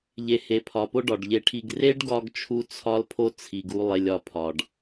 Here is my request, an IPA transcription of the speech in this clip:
ʎ e˨ h e˨ pʰ ɒ˨ p o˦ ɖ ɒ˨ ɖ ʎ e˧ ʈʰ i˧ ɡ r e˦ ɖ ɡ ɒ˧ ɡ t͡ʃʰ u˦ t͡sʰ ɒ˦ l pʰ o˦ t͡sʰ i˨ ɡ u˧ lˠ e˧ lʲ ɒ˧ pʰ ɒ˨ ɖ

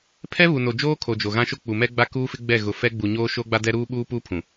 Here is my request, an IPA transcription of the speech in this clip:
pʰ ɛ˦ β u˨ n o˨ d͡ʒ oː˦ kʰ o˨ d͡ʒ o˨ ɣ ã˦ ʃ o˦ k͡p u˨ m ɛ˦ ɡ͡b a˦ k uː˦ f ɪ˦ ɡ͡b ɛ˦˨ ɣ ʊ˨ f ɛ˦ ɡ͡b u˨ ɲ oː˦ ʃ o˦ ɡ͡b a˦ d ɛ˦ ɾ uː˦ ɓ uː˦ p uː˦ pʰ ũ˨

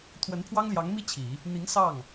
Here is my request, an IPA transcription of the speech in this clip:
t̪ʰ w ə˧˥ n pʰ w ɑ˥ ŋ l j ɑ˧˥ ŋ m i˥ t͡ɕʰ i˨˩˦ | n̪ i˧˥ ŋ s ɑ˥˩ ŋ

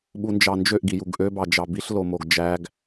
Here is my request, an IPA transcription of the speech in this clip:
ɓ u n d͡ʒ ɑ n d͡ʒ ø ʔ ɡ i j u ɡ ʔ ø b ɑ d͡ʒ ɑ b i ɬ l o m o ɡ d͡ʒ æ ɡ

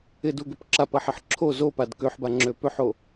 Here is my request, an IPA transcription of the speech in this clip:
ɪ d u ɡ ʏ p ǁ a p ɐ ħ ɪ ħ ǁʰ o z o p a d k ø ħ b a ŋ͡ǁ ø p ø ħ o

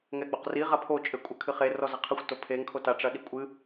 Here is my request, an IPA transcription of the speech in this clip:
ŋ ɛ ɡ͡b o q r i ʁ a pʰ o t͡ʃʼ ɘ kʷʼ ɘ kʰ ɨ χ e r ɔ z ɐ qʰ ɨ xʷ t o pʰ e ŋ kʰ o t a ʈ͡ʂ ɐ ɗ i kʷʼ ɨ

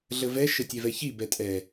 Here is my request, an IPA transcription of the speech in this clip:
ɮ ə v ɛ ʃ ə tʲ e v ɛ ç i b ɛ tʼ ɛ

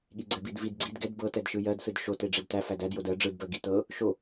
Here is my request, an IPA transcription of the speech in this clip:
ɠ i ɡ͡ǀ ɛ b i d v i d ɡ͡ǀ i d ɡ ɛ d b ɤ t ɛ d ʃ ɯ j ɜ d s ɯ d ʃ o t e ɖ͡ʐ e d t æ f æ d æ d j o d ɜ ɖ͡ʐ ɯ d b ɜ ɡ i t ɤ | ʃ o

